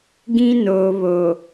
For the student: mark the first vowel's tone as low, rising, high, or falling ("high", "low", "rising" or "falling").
high